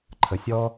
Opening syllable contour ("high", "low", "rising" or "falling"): low